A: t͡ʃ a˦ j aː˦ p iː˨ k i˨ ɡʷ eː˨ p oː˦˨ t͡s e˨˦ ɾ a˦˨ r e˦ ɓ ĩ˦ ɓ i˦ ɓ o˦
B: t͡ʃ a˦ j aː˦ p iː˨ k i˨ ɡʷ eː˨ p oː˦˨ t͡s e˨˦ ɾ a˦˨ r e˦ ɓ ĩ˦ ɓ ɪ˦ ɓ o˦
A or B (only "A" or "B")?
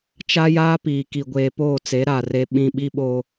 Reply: A